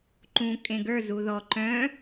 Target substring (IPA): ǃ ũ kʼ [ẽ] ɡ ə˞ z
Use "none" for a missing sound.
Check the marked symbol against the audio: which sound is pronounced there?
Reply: ẽ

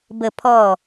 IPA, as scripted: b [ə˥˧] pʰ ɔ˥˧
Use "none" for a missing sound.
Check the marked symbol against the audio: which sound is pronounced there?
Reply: ə˥˧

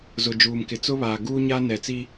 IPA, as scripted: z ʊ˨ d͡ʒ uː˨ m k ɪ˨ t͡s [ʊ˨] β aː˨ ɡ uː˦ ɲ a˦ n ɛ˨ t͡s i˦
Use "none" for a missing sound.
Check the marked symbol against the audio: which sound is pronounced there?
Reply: ʊ˦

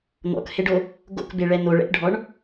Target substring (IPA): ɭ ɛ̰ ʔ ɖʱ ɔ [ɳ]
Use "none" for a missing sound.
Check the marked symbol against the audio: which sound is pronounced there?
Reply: ɳ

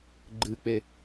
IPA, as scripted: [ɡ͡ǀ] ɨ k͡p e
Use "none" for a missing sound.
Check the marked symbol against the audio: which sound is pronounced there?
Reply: ɡ͡ǃ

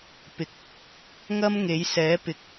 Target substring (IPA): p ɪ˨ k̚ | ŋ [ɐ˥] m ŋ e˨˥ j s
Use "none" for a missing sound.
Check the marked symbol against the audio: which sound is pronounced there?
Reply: ɐ˥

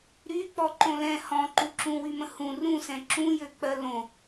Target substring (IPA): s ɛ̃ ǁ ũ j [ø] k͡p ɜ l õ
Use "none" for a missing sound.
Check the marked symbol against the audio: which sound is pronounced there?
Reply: ø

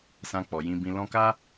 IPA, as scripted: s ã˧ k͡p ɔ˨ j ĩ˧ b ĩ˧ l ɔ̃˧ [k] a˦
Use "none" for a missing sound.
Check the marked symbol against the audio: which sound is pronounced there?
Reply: k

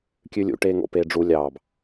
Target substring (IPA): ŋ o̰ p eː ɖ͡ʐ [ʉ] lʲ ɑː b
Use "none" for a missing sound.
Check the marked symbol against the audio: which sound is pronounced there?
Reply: u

